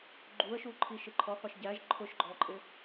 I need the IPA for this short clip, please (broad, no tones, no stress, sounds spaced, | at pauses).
ɡ͡ǃ u ə̯ ʃ u ǃʰ i ʃ ɪ ǃʰ ɔ qʷ ə ʃ ɟ æ ʒ ǃʰ ʊ ʃ ɡ͡ǃ ɔ ǃʼ ɪ